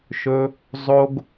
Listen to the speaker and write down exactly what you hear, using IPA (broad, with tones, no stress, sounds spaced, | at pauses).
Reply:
ʃ ɵ˩ | zˤ o˩ ɡ